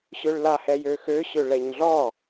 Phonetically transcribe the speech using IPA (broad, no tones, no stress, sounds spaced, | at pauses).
ɕ ø ɭ l a h ɛ j ø x ø ɕ ø ɭ ɛ ɲ ɮ ɔ